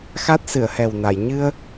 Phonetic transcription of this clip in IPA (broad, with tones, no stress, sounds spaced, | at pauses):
x a˦˥ t̚ s ɨ˨˩˨ ə̯ h ɛ˨˩ w n a˨˩˨ j ɲ ɨ˧ ə̯